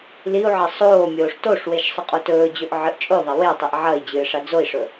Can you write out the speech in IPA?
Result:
liu̯ʕɐ sˤoː mʲoːʂtoʂweʃ sˤɨqʼotɵːd͡ʑɵʔ ʕɨʔt͡ʃʼoðˤɐ wetˤiʔ ʕɐi̯ d͡ʑɨːʂad͡zoi̯ʂɵ

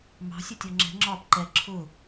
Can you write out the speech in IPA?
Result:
mɑ̤sʲʌtʲɔ ŋ͡ǁɛ̤ŋ͡ǁɒːp ǃɛ ǁʰʊ

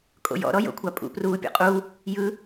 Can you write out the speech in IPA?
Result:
kʼo̰jɔ̰ ɾɔjo̰kʷʰapʼṵ pruːpʲɔ̰qʼu | jɯ

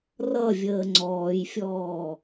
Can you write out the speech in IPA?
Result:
rʌvʲəː ŋ͡ǀɔːjfʲɔː

